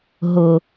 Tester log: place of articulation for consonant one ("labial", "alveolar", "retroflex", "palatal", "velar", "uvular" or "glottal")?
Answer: glottal